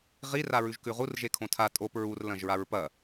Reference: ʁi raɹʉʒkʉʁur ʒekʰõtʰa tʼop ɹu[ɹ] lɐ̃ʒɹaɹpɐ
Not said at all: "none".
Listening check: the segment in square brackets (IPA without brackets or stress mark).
r